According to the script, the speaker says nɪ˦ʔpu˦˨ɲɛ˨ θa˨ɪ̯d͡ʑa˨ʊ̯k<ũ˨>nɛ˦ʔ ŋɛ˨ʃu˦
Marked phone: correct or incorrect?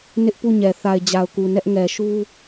incorrect: u˨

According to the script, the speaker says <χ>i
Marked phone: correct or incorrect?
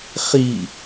correct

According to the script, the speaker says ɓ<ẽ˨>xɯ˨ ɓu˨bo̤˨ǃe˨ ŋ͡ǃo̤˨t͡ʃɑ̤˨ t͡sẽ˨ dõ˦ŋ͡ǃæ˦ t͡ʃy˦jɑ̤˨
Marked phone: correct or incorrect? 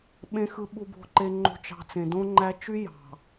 correct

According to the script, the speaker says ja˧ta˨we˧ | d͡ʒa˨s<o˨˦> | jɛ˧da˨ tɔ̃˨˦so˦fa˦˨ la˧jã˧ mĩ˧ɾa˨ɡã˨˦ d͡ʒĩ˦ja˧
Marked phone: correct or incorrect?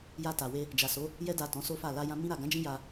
correct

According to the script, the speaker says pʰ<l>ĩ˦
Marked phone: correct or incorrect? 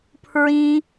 incorrect: ɹ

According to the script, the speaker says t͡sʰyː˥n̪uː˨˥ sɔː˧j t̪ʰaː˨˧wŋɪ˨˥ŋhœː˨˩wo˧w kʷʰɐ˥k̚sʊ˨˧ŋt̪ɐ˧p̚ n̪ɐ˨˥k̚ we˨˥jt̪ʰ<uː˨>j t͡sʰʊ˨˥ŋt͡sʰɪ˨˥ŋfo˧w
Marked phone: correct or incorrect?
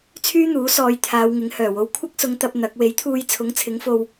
incorrect: uː˧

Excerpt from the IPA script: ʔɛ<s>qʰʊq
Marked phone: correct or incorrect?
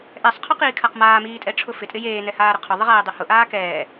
incorrect: sˤ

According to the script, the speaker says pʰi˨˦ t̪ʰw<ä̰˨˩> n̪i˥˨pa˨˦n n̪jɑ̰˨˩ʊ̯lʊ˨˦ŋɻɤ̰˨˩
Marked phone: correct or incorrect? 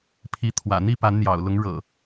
correct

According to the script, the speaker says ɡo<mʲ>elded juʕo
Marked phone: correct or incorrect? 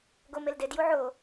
incorrect: m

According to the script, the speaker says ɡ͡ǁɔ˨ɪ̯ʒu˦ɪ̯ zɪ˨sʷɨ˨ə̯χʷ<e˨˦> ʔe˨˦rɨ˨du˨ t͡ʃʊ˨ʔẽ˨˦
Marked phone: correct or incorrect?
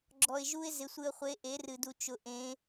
correct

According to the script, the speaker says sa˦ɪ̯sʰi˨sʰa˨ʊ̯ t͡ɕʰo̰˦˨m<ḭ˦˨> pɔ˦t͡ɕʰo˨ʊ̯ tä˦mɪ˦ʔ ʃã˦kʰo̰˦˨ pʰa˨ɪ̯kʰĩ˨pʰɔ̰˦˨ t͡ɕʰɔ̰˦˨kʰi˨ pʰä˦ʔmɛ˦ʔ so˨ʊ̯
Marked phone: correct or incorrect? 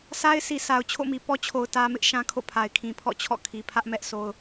incorrect: i˨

